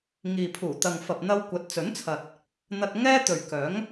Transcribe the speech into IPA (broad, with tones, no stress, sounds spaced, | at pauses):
ŋ iː˨ pʰ uː˨˩ t̪ ɐ˨ ŋ f ɐ˨ p̚ n̪ ɐ˧ w kʷ ɐ˨˥ t̚ t͡s ɵ˨˥ n t͡sʰ ɐ˨ t̚ | n̪ ɐ˧ t̚ ŋ ɛː˥ t̪ ɵ˨ ɥ k œː˨˥ ŋ